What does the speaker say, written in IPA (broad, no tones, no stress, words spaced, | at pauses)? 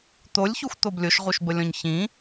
t̪olʲçuxʷt̪ob lʲoʃʁuʃbəlʲɔ̃ɲ çĩ